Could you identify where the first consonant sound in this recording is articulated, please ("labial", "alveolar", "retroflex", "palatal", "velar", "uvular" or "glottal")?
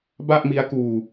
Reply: labial